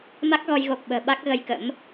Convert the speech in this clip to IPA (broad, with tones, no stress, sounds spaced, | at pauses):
m a˦˥ k̚ ɣ ɔ˧ j ɣ o˨˩ k̚ ɓ ə̤ː˨˩ ɓ a˦˥ k̚ ɣ ə˧ j k ə̰˧˥ m